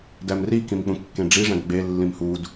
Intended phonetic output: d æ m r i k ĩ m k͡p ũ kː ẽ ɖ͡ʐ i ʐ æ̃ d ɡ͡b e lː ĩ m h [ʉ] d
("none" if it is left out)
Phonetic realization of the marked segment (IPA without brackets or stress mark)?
u